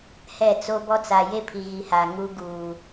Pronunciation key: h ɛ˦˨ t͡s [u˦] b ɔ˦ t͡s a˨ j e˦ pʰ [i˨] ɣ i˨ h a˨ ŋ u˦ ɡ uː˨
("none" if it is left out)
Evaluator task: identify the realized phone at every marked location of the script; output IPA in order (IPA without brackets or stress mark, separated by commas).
o˦, i˨